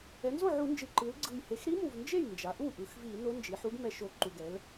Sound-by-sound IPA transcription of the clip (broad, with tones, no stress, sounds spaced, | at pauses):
ɛ˩˧ n z o˥˩ ʕ u˧˩˧ n d͡ʒ ɯ˨˩ ǃ ɯ˩˧ l ɡ͡ǀ ɯ˨˩ j h e˩˧ x ɾ i˧˥ m u˨˩ v n d͡ʒ e˥˩ j n d͡ʒ a˩˧ ʔ u˥˩ ʔ ɯ˩˧ x v i˧˩˧ n o˧˥ n d͡ʒ i˩˧ ħ u˧˥ ɡ m ɛ˧˩˧ ʃ o˨˩ ǃ u˨˩ ɡ ɛ˩˧ l